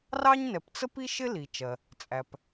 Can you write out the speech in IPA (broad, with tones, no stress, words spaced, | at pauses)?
rɑ˥ɲnɛ˩pt͡sə˥pi˥ ʃɪ˥li˩t͡ʃɜ˩ | t͡sʼæ˩p